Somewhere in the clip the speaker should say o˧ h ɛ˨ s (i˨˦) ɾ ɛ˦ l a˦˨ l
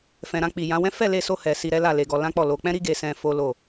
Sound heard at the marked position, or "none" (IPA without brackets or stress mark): i˧